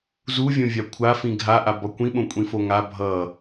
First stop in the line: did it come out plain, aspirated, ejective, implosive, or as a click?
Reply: aspirated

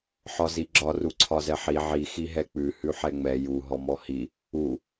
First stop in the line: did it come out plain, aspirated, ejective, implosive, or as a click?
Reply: click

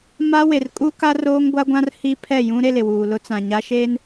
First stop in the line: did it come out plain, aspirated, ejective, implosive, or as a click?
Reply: ejective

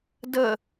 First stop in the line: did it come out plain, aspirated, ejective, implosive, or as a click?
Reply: plain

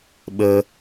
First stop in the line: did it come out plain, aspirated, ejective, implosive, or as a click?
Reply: implosive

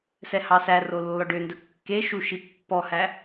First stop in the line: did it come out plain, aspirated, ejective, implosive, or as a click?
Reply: plain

